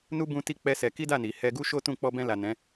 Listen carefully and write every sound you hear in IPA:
nu˦ bũ˦ti˦ k͡pɛ˦sɛ˧ ki˦da˦˨ ni˨ hɛ˧ɡu˦ʃo˦ tũ˦˨ k͡pɔ˧bɛ̃˧la˨ nɛ̃˨˦

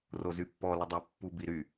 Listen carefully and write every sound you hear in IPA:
rozypːɔ lədˤi pːubiɾy

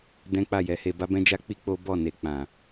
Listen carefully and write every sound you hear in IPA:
dɛ̃˦k͡pa˦˨jɛ˨˦he˧ ba˦bɛ̃˦d͡ʒa˦k͡pi˦ k͡po˦bɔ˦˨ne˨ k͡pã˨

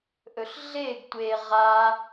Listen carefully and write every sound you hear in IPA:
ʔɵɬɮeɡ tʷe ʁa

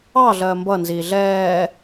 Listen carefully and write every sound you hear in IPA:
ɑɮɜː mbʌnziː ɮɛː

